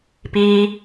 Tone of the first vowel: low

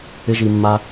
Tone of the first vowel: high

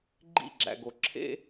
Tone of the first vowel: falling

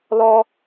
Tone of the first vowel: high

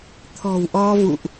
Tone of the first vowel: low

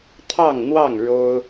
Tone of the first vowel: falling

